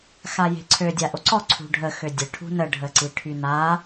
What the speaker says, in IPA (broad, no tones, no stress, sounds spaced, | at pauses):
x a j e̤ ǀʰ ø dʲ a ʔ o ǀ ɔ ǀʰ ṳ ɖʱ ə x ø dʲ ə ʈʰ ṳ n ə ɖʱ ə ǀ i ʈʰ y n a